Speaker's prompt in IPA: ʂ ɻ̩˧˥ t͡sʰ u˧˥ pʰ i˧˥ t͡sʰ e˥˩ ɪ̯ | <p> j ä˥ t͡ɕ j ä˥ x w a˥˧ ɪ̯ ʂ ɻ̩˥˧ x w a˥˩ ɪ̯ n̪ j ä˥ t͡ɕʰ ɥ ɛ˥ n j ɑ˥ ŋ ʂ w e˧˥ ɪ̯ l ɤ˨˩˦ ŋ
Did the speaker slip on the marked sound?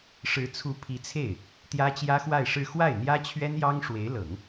yes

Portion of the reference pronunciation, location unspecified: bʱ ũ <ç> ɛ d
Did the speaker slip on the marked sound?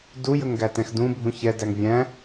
no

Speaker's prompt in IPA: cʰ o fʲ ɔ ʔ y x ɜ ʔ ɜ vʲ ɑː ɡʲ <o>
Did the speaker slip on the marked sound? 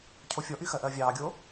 no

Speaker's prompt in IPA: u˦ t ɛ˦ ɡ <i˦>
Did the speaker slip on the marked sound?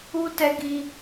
no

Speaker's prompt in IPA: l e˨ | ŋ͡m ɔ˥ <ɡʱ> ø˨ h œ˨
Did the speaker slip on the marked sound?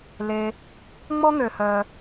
yes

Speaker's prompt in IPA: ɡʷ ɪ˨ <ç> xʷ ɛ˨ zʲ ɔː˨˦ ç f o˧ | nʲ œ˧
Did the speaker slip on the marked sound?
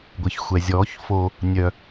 no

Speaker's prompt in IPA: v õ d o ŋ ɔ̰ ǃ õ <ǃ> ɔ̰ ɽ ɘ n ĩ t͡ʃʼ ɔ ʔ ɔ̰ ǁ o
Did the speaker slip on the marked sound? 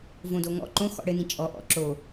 yes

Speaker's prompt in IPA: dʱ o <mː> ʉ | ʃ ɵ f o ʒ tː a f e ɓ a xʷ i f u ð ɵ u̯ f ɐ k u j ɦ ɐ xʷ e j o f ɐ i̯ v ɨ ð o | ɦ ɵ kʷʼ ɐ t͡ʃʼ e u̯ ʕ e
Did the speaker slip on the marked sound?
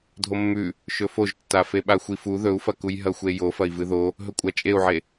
no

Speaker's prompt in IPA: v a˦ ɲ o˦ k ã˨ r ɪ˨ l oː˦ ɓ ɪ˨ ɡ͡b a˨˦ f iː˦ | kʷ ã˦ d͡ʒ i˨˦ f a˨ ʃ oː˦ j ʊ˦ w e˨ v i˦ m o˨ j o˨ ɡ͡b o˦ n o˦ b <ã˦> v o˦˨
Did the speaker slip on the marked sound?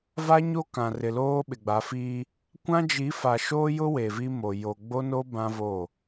no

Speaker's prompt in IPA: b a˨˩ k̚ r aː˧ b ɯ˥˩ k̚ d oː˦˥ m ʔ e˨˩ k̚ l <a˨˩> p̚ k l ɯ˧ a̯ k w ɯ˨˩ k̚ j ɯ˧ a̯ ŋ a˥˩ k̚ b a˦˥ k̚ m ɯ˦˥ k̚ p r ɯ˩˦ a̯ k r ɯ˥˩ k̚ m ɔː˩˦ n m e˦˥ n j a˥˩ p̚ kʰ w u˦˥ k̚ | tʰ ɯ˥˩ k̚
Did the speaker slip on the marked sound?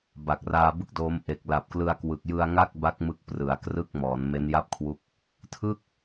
no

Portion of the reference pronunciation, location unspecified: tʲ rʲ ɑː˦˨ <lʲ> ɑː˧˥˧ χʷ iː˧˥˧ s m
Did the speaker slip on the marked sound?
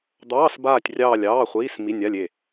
no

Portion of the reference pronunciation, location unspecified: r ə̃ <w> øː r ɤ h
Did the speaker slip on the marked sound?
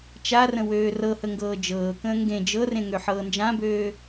no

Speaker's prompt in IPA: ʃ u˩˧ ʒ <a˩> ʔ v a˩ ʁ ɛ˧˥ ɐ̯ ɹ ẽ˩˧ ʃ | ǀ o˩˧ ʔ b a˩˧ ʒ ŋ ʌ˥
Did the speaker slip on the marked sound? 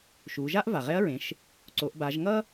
yes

